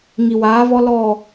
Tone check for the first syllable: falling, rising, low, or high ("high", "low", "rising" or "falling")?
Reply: low